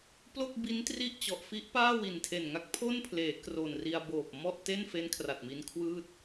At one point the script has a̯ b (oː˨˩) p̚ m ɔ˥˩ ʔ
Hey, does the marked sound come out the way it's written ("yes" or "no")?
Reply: yes